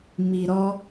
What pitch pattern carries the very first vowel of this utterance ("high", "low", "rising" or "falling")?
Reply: low